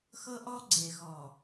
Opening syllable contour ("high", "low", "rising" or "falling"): high